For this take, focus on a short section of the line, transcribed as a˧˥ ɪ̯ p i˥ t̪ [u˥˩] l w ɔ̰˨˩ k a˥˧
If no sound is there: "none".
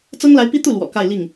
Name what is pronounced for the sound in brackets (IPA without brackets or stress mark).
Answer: u˥˩